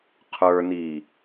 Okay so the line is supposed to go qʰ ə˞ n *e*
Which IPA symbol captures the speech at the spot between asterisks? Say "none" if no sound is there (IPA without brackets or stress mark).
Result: i